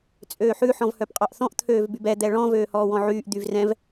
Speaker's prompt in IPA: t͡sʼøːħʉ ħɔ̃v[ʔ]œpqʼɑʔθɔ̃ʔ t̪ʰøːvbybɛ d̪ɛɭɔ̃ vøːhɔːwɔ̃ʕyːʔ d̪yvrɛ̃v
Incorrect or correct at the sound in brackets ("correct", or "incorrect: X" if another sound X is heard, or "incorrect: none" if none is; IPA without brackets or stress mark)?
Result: incorrect: h